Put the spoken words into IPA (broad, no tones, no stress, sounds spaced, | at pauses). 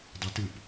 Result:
dˤ i t ɯ p